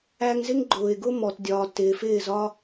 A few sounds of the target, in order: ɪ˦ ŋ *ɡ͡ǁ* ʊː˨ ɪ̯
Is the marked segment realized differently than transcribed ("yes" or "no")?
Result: yes